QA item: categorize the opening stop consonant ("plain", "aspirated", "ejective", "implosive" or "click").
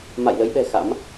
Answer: implosive